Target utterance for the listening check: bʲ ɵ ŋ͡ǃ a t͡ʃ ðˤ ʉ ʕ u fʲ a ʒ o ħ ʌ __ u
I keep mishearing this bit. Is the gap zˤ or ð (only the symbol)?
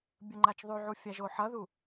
ð